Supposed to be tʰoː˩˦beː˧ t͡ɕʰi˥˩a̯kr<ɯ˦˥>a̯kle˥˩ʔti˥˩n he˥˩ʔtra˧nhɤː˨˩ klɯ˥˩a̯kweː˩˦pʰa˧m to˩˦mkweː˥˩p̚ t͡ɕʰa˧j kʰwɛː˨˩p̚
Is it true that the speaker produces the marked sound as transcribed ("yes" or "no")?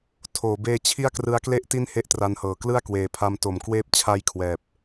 yes